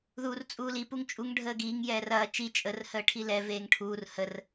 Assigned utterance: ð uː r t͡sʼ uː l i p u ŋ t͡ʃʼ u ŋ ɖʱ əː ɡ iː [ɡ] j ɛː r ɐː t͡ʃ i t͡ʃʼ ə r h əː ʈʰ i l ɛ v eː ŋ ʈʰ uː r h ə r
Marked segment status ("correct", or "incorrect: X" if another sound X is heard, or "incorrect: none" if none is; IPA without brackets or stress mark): incorrect: ŋ